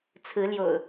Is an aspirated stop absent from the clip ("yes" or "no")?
no